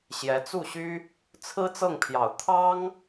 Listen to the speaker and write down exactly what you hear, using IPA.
ɕ j ɛ˧˥ t͡s u˥˩ ɕ y˥ | t͡sʰ ɹ̩˥ t͡s ɤ˥˩ ŋ pʰ j ɑ˨˩ ʊ̯ t̪ʰ ɑ˥ ŋ

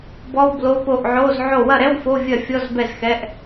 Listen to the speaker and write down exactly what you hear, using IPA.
b ɔ˧˥˧ w b l o˧˥˧ p o˥˩ ʔ ʕ o˧˥˧ z ʕ o˥˩ w ɐ˥˩ ɾ ɛ˧˥˧ w f o˧˥˧ vʲ ɐ˥˩ fʲ ɔ˧˥˧ z b ɛ˥˩ z x ɛ˧˥˧ ʔ

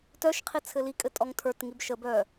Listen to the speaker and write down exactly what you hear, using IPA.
t œ ʃ qʰ i t͡sʰ ɘ l i kʼ ɘ tʼ ɔ ŋ tʰ ə˞ t ŋ i b ʃ ə b œ

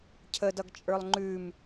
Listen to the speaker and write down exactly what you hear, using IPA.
cʰ ə d ʌ ɡ t͡ʃʼ ə˞ lˠ ŋ͡ǃ ʉ m

